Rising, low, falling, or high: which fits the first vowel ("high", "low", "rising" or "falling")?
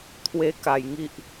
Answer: high